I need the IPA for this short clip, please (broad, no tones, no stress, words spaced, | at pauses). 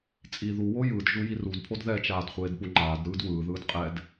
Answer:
t͡sʼi ðuwo jɯdʒu jirudpʰod ðɛt͡ʃaːd χʷeːdpuŋ͡ǃaːdɾɯːd wɯːðɯːd qʼɛd